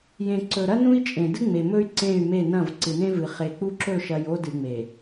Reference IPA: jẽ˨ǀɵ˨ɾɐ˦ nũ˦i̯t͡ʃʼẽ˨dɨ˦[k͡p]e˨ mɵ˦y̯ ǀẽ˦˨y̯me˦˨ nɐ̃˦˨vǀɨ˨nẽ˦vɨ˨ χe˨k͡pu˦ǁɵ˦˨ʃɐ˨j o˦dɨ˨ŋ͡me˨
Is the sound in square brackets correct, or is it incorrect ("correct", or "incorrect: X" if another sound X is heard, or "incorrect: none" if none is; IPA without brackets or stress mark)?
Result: incorrect: ŋ͡m